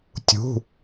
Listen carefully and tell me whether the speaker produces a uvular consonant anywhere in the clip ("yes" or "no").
no